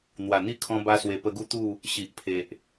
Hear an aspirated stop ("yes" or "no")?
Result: yes